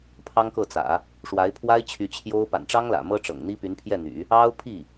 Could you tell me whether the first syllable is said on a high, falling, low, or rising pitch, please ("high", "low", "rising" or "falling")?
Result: high